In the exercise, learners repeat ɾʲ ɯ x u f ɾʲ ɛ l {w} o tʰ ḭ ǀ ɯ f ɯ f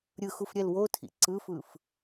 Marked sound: correct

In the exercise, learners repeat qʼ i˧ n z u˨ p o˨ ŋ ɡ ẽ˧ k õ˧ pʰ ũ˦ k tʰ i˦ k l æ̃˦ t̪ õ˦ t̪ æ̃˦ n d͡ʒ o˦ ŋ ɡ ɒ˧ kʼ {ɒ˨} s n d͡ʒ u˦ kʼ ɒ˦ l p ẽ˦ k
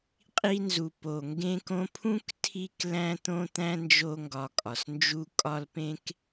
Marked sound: correct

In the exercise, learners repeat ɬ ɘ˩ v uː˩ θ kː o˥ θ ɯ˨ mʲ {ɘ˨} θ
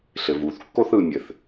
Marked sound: incorrect: ɘ˩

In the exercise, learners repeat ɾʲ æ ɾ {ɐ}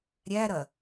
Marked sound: correct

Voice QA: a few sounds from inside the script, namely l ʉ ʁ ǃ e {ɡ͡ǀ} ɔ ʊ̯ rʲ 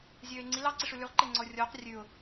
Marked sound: incorrect: ŋ͡ǀ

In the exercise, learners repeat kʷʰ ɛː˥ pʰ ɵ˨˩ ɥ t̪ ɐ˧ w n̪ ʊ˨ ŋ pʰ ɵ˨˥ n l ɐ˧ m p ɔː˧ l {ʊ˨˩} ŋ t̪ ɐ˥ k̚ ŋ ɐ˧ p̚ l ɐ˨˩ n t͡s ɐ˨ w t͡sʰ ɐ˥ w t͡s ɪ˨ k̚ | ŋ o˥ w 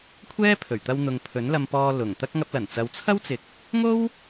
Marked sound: correct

